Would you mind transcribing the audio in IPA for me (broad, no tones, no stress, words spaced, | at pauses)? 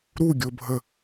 ɾuɡʲobʱə